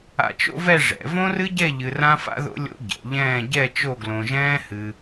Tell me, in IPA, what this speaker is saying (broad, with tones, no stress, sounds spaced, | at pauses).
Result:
a̰˧ t͡ʃ o̰˥ v ɛ˥˧ ʐ ɛ̰˩˧ v õ˥ r ɨ˥ ɟ ɛ˥˧ ʎ ɨ˧ r ã˥ f a̰˥ ð o̰˥ lʲ o̰˥ ɟ ɛ̰˩˧ ʎ ɛ̃ː˥˧ ɟ ɛ˥˧ t͡ʃ o˥˧ ɡ l õ˧ ʒ ɛ̃ː˥ h ɨ˧